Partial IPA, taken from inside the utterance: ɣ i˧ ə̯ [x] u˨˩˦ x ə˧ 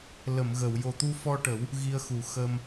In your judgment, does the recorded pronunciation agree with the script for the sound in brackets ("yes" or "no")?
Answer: yes